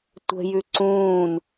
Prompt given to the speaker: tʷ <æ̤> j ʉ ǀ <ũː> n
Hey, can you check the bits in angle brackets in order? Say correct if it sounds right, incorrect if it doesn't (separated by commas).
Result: incorrect, correct